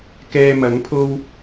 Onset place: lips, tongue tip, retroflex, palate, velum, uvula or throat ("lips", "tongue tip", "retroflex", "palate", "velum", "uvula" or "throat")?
velum